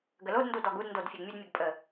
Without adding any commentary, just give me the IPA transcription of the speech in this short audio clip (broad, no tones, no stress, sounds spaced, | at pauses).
ɡ ə l o d n d u d ɔ ɡ u d n d o d fʲ e ɡ mʲ ɘ d mʲ ɘ ɡ pʼ ə